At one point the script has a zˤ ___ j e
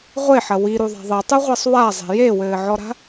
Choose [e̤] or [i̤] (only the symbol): e̤